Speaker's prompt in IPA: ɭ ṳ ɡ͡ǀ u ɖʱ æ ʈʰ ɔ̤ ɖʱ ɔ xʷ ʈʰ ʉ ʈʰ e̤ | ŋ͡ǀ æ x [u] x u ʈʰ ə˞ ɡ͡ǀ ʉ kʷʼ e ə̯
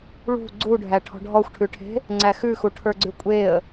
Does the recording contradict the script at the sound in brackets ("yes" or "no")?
yes